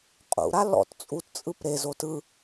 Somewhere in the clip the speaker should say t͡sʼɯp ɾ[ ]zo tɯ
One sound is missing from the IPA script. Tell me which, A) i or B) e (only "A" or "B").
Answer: B